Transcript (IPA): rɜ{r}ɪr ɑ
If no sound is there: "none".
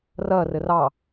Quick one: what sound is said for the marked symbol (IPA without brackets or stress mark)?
r